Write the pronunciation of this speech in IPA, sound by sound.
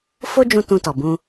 f o˦ d͡ʒ ũ˧ t ũ˧ t ɔ˨ b ũ˧

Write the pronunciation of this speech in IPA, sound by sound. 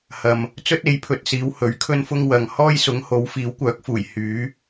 h ɐ˨ m | t͡s ɵ˥ t̚ e˨˥ j pʰ ɵ˨˥ t̚ s iː˨˧ w h ɵ˨˥ ɥ kʰ ɵ˥ n f ʊ˥ ŋ w ɐ˨ ŋ h ɔː˥ j s ʊ˨˥ ŋ h o˨˥ w f iː˨˥ w kʷ œː˨˥ k̚ f uː˨˩ j h yː˨˥

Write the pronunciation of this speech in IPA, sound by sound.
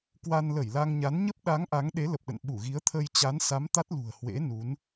k w a˧ n l ə˧˩ j l a˧ ŋ ɲ a˨˦ n ɲ ə˦˥ p̚ ɗ a˨˦ ŋ ʔ a˨˦ ŋ ɗ e˨˦ l ə˨˩ p̚ ɗ ə̰˧˨ n ɓ u˧˩ ɣ i˨˦ ə̯ t̪ʰ ə˧ j t͡ɕ a˨˦ n s a˨˦ m t̪ a˦˥ t̚ l ṳ˨˩ ə̯ h w ḛ˧˥ n u˨˦ n

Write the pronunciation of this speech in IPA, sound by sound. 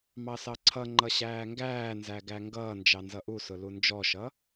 m ɑ s ɑ ǀʰ ʌ ŋ͡ǃ ʌ ɕ æː ŋ ɡ æː n z æ ɡ æ ŋ ɡ ʌː n d͡ʒ ɑ n z ʌ ʔ u s ʊ l u n d͡ʒ ɔ ʃ ʌ

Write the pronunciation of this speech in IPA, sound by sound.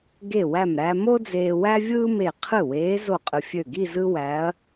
ɡ e˧˩ w æ˧˩ m ɾ æ˧ m o˥ d͡z eː˧ w æ˥ vʲ ɯː˥ m e˧˩ qʰ ɯ˥˩ w eː˧˥ z o˥˩ qʼ ɯ˧ fʲ ø˧˩ ɡ i˥˧ z ɯ˥ w æ˧˥ ɐ̯

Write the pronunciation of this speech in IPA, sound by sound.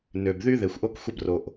n ø˩ b ð y˧ ð e˩ xʷ ʔ o˧ k xʷ ə˧ b r o˩ ʔ

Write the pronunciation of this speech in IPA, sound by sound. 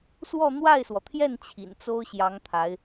s w ɔ˥˧ n̪ w a˥˩ ɪ̯ s w ɔ˩ t̪ʰ j ɛ˥˩ n t͡ɕʰ ḭ˨˩ n t͡s o˥ ʊ̯ ɕ j ɑ˧˥ ŋ t̪ʰ a˧˥ ɪ̯

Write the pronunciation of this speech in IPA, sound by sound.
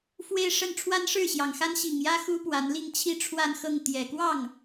f w e˥˧ ɪ̯ ʂ ə˥˩ n ʈ͡ʂʰ w a˥ n ʂ ɻ̩˥˩ ɕ j ɑ˨˩ ŋ x a˥ n ɕ i˨˩ ŋ j ä˥ x u˥ p w a˧˥ n l i˥˧ ŋ t͡ɕʰ i˥˧ ʈ͡ʂʰ w a˥˧ n x ɤ˥˩ ŋ t̪ j ɛ˨˩ k w ɑ˥˩ ŋ

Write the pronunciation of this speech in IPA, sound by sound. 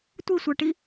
tʷ i sʷ œ ʈ i

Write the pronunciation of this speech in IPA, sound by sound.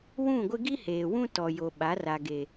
w ũ˦˨ ɡʷ ɪ˦ ɡ i˦ h eː˨ w ũ˦ t ɔ˨ j o˨ ɓ a˨˦ r a˨ ɡ e˨

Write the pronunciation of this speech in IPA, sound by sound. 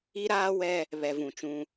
i˦ ɾ aː˦ w ɛ˦ | β ɛ˨ v ũ˨ t͡ʃ ũ˦

